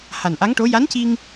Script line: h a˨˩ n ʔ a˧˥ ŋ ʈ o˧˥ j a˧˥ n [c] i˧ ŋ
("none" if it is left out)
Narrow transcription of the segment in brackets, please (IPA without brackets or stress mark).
c